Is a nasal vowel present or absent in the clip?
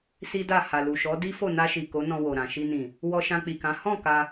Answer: present